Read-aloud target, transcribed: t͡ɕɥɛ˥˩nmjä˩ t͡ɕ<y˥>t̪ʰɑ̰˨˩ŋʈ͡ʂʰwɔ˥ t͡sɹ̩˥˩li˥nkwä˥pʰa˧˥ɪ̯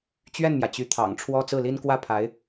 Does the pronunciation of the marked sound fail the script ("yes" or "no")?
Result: yes